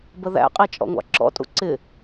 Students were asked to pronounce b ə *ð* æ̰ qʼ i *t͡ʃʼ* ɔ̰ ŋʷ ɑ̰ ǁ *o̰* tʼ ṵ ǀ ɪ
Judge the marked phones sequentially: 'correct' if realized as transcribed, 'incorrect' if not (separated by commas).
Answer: correct, correct, incorrect